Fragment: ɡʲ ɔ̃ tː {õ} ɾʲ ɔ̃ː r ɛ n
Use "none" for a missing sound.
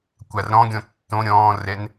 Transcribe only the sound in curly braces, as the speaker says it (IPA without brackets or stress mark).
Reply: õ